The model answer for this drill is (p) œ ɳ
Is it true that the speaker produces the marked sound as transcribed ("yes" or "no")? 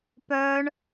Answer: yes